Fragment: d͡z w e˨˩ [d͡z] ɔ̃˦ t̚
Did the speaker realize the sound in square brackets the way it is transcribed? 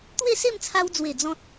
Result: yes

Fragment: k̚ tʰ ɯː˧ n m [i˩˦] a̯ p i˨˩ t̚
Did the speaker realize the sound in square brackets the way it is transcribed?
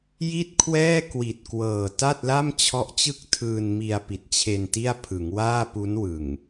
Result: no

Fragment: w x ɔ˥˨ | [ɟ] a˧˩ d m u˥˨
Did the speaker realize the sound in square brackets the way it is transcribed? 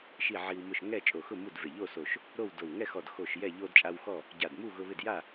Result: yes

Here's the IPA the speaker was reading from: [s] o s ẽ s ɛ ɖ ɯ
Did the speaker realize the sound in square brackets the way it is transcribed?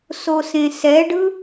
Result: yes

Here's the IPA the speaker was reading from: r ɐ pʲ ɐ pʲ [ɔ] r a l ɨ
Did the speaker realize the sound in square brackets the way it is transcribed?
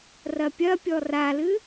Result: yes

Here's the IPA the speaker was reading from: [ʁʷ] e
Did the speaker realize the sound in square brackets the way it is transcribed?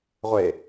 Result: yes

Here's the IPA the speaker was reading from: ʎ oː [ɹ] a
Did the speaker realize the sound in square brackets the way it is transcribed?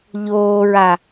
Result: yes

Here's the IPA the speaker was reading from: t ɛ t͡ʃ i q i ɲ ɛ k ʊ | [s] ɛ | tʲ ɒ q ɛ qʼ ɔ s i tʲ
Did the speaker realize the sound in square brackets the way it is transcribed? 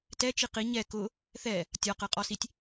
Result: no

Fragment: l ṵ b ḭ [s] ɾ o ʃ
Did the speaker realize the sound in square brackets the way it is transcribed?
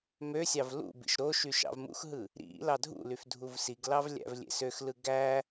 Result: no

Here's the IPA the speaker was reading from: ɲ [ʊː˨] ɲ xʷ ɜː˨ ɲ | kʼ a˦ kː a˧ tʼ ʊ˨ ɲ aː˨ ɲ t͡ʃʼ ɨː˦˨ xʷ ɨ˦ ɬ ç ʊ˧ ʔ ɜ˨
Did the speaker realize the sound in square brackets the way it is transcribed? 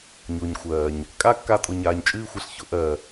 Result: yes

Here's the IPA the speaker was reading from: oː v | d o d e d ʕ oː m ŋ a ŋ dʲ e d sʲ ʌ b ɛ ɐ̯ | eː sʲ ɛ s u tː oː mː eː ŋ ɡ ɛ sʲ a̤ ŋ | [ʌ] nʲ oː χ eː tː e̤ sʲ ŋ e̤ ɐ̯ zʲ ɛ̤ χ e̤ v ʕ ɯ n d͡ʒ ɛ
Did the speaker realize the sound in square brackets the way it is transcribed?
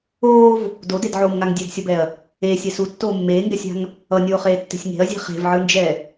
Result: yes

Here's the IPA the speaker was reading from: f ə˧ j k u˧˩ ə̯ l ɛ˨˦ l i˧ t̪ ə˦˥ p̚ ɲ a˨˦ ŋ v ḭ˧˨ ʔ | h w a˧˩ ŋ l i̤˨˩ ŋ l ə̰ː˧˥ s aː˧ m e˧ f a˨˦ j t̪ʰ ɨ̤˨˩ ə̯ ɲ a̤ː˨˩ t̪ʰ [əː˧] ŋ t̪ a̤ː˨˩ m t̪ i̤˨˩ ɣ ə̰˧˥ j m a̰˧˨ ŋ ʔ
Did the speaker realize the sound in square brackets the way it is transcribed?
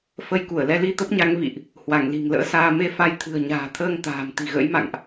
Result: yes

